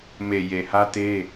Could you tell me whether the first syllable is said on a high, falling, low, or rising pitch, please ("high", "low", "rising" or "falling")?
low